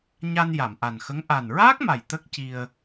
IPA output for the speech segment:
ɲ a˧ n j a˨˩˨ m ʔ a˨˩ n x ə˧˥ ŋ ʔ a˨˩ n ɹ aː˦˥ k̚ m a˨˩ j t̪ ə˦˥ k̚ c i˧ ə̯

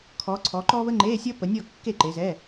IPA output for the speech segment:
kʰ ɔ˨˦ ǀʰ ɔ˨˦ ǃ ɔ˥ β ə˥ ŋ͡ǃ e˧˥˧ sʲ ʌ˥ p ə˨˦ nʲ ɔ˥˨ kː e˥˨ ǃ e˨˦ z ɛ˧˥˧

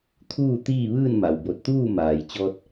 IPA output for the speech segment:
t̪ʰ uː˥˨ t̪ iː˥˨ ʋ ɯː˥˨ n m a˩ w b o˧˩ t̚ t̪ uː˥˨ m aː˩ j t͡ɕ ɔː˧ t̚

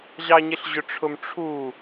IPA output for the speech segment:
ʑ ɑ ɲ ɪ ɬ ʑ ʊ ʈ͡ʂʰ ʊ m ʈ͡ʂʰ u

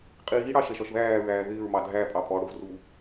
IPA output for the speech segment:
qʼ iː ɽ ɑ ʃ ɛ ʃ ɒ ʃ ð æː ɹ æː ð ɪː ɹ m ɑ dʱ æ pʼ ɑ pʼ ɔ ɽ ʊ v r u

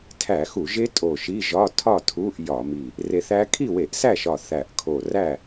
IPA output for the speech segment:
tʰ æ˧˩˧ x u˧˩˧ ʒ e˦˥ tʼ o˧˩ ʃ i˧˥˧ ʒ ɒ˧˥˧ tʰ ɒ˥˨ tʰ u˧˥˧ ʔ j ɒ˧˩˧ m i˧˩ | r e˧ θ æ˦˥ kʰ i˥˨ w e˧˩˧ ʔ s æ˥˨ ʃ ɒ˧˩ θ æ˧˩ ʔ kʰ o˧˩ r æ˥˨

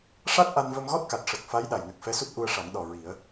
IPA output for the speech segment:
ʂ a˦˥ t̚ ʔ a˧ n v ə˧ m ɣ ɔ˦˥ t̚ k a˨˩ t̚ ʂ ə˨˩ k̚ f a˧˥ j ɗ a˨˩ j n ə˨˩ k̚ f ɛ˧˥ s u˦˥ t̚ ʔ u˧ ə̯ ʂ a˨˩˦ ŋ ɗ ɔ˨˩ ɹ i˨˩˦ ə̯

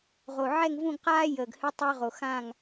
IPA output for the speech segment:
ʁ o˧˩ ʕ ɛ˥˧ ŋ v ũ˥˧ ɡ q aː˥ j əː˧ ɡ h ɨ˥ tˤ ə˞˥ ʁ o˧ x ã˥˧ ŋ

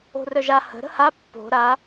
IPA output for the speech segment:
o̤ r œ ʒ a h ə̤ ɾ ə̤ h a pː o̤ ɾ a

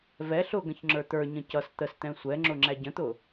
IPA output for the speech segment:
v ɛ ɬ ʊ ɡ ə̃ ç ŋ͡ǁ ə˞ t̪ ə˞ ɲ ə̃ c ʌ s t̪ ə s t̪ ɛ̃ sʷ ɛ ŋ͡ǁ ʊ ŋ͡ǁ æ ɟ ə̃ t̪ ʊ

